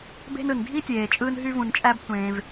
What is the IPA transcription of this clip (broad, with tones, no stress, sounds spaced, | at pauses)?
b e̤˦ n ɯ˩ n dʱ i˥ tʲ eː˩ t͡ʃʼ ɯː˦ n ɦ y˦ v ũ˨ n t͡ʃʼ æ˦ b tʷ ẽː˨ v